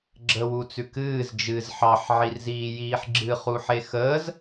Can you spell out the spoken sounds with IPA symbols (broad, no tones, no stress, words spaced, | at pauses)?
ɡ͡ǁəwu t͡sʉkɨːz d͡ʒɨz ħɑħ ʕirziːjiːħɡ͡ǁɨ χuħexəːz